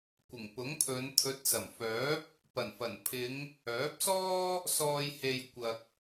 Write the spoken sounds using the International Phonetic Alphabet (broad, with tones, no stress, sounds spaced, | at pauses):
kʷ ɪ˨˩ ŋ p ʊ˨˥ ŋ pʰ ɵ˨˧ n t̪ʰ ɵ˨˥ t̚ s ɐ˨˩ m f œː˨˥ p̚ | p ɐ˨˩ n f ɐ˨˩ n pʰ ɪ˨˧ ŋ | œː˨˥ p̚ s ɔː˥ | s ɔː˨ j h e˨ j kʷ ɐ˨ k̚